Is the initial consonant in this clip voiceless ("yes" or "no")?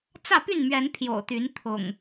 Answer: yes